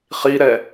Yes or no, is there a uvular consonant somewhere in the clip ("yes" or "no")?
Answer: yes